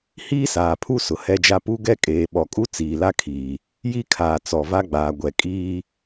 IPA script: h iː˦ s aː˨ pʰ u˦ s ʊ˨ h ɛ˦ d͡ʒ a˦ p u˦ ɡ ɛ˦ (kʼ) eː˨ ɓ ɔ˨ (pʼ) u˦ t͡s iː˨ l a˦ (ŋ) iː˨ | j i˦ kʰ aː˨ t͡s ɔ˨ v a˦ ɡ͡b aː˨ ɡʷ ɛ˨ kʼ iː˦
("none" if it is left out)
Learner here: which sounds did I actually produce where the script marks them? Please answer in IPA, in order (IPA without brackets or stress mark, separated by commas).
kʼ, kʼ, kʰ